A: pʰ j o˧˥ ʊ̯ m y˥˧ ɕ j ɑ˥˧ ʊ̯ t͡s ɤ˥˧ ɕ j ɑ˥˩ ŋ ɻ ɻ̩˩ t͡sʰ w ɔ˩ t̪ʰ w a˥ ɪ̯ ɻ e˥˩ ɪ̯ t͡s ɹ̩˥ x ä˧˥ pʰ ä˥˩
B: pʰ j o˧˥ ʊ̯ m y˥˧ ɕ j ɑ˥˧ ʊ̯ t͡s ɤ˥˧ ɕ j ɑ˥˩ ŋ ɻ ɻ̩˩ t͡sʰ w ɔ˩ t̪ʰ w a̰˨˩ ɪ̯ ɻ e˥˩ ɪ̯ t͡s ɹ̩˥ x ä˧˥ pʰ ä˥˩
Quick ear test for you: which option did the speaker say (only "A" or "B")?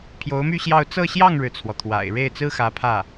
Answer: B